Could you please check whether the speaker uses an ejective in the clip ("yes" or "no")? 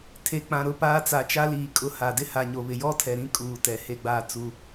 yes